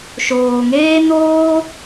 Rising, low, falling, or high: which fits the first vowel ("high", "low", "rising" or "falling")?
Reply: low